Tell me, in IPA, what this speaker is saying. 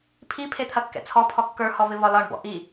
pʰ i pʰ e t̪ʰ ɐ kː ɛ̰ t͡sʰ ɔ pʰ ɔ kː ə˞ h ɔ v ɪ v ɒ l ɒ ɳ b ɔ̰ ʔ i

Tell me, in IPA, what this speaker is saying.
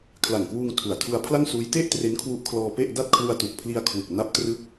kʰ l a˨˩ ŋ k w uː˧ ŋ tʰ u˨˩ a̯ tʰ u˧ a̯ pʰ l a˥˩ ŋ s uː˦˥ j t e˥˩ ʔ t r e˦˥ n kʰ w u˦˥ ʔ kʰ l ɔː˧ p e˥˩ ʔ d a˥˩ t̚ kʰ l u˧ a̯ t u˨˩ k̚ pʰ l i˧ a̯ kʰ w ɯ˨˩ k̚ n a˦˥ p̚ t r ɯ˦˥ k̚

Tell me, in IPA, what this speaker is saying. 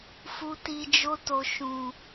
f u˨ t i˨ d͡ʒ o˧ t o˨ ʃ ũ˨

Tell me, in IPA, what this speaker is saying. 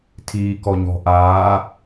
tʰ iː k ɔ ɲ ɔ̤ ʔ aː

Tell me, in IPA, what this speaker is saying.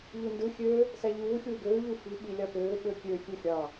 ʎ u n d ɯ xʲ ø | s æ ʎ uː xʲ uː ɡ øː ʎ ɯ f i ɓ i lʲ ɑ p øː ɓ ø kʲ ø xʲ u xʲ ɑ

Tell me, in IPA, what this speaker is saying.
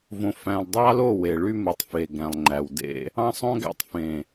v õ˨ f æ̃˨ lˠ dˤ ɑ˦ l o˦˨ w e˨ ɭ y˦ m u˨ tˤ f e˨ ɡ æ̃˨ lˠ ŋ͡ǃ æ˨ w d ḛ˦ | ɑ̃˦ sˤ õ˦ ɡ æ̰˦ tˤ f ẽ˨

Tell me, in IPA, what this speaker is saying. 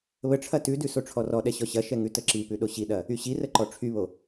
β ə ʈ͡ʂʰ ɐ t ʉ d ʉ s o ʈ͡ʂʰ ɔ r ɔ ɗ ɛ ɕ ɔ ɕ ɐ ʃ ɛ ŋ ʉ t ə ǁ i p ʉ ɗ o ɕ i ɗ ɐ | y ɕ i r ə ǃ ɔ ʈ͡ʂʰ y β o

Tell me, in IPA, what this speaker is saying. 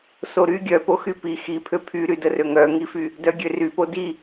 s o ɾ y ɡʲ œ p o x y p i x i pʰ ø pʰ y ɾ y d ə r ø ŋ œ ŋ i f y | d œ ɡʲ ø r y p o d i

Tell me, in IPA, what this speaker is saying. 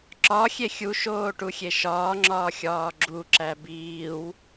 ǁ ɒ xʲ e xʲ u ʃ oː ʈ u xʲ e ʃ ɒː ŋ͡ǁ ɒː xʲ ɒː ɡ͡ǁ u ǁ æ b iː w

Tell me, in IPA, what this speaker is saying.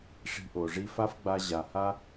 ʂ i̤˨ ʔ o˩ ʐ i˦ f a˥ f ɡ͡b a˦ ʑ a˨ h a˥

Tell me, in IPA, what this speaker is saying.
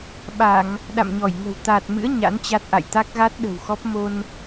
ɓ a˧˩˨ ŋ | ɗ a̰˧˨ m ɲ ɔ˧˩ j ŋ ə̤˨˩ w t̪ aː˨˩ t̚ m ɨ̰˧˥ ə̯ ɲ a̰˧˥ n t͡ɕ a˦˥ t̚ ʔ a̰˧˨ j t̪ a˦˥ k̚ ɣ a˦˥ t̚ ɗ ə̤˨˩ w x ɔ˦˥ p̚ m o˧ n

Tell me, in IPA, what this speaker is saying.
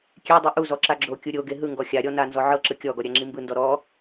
kʲ e dˤ ɯ ʔ u z ɔ ǁ a ɡ͡ǁ o kʲ u ɾʲ o ɡ e ɦ ɯ ŋ ɡ ɔ xʲ a ɾʲ ɔ n a n z ɔ ʕ ɤ ǁ ɯ kʲ ɔ ɡ ɔ ɾʲ a ŋ͡ǁ i m b ɯ n d ɔ ɾ ɔ

